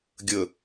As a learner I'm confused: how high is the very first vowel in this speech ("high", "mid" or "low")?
mid